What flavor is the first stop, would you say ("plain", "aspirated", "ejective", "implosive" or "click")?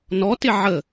plain